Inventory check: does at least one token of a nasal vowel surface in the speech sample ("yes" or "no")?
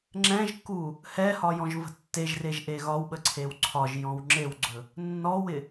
yes